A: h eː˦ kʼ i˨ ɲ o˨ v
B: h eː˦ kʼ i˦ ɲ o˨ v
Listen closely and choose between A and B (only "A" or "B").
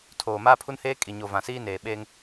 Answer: A